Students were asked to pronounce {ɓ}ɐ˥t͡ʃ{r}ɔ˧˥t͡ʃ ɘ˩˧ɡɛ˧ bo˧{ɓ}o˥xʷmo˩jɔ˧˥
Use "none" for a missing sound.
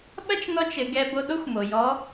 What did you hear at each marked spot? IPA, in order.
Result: ɓ, n, ɗ

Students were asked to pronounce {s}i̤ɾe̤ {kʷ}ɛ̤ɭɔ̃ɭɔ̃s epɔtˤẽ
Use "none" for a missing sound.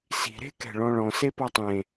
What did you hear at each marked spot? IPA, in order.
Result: s, k

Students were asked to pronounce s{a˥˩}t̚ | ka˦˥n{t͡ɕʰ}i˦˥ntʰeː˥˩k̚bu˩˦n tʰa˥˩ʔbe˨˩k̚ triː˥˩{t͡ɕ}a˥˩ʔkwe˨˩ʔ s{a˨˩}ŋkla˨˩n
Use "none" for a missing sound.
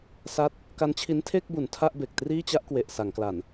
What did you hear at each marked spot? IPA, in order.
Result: a˦˥, t͡ɕʰ, t͡ɕ, a˩˦

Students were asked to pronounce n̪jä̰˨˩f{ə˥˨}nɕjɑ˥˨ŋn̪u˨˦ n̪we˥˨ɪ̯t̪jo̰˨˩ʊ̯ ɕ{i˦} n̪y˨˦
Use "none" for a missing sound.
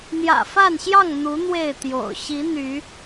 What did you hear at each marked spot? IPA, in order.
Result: a˥˨, i˨˦

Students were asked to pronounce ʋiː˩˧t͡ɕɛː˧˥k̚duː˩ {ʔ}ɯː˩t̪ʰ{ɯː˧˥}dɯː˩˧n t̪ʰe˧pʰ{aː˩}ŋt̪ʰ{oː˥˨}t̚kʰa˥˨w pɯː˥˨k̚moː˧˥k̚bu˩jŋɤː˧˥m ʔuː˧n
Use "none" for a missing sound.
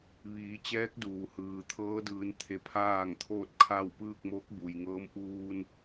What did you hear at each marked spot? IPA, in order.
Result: h, ɤː˧˥, aː˥˨, oː˥˨

